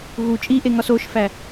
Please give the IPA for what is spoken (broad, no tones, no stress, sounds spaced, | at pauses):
ɣ u t͡ʃʼ i ʔ e ŋ ɒ s o ʃ f æ